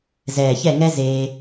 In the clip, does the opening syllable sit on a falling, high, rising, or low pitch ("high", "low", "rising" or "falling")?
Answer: low